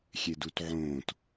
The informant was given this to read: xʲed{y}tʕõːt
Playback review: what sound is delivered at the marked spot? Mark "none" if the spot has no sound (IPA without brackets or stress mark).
u